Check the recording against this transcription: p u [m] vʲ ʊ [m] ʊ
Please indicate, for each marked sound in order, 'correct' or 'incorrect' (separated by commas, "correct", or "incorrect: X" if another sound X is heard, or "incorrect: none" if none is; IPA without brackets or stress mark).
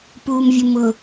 correct, correct